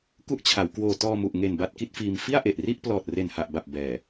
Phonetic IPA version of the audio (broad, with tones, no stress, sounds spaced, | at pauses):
k u˦˥ ʔ t͡ɕʰ a˩˦ w k w oː˧ t ɔː˧ m u˨˩ ʔ ŋ e˨˩ n b a˥˩ t̚ k i˥˩ t̚ f iː˧ m f i˥˩ a̯ ʔ e˨˩ ʔ r i˥˩ ʔ p l ɔː˨˩ t̚ r e˨˩ n h a˨˩ ʔ b a˨˩ p̚ b ɛː˨˩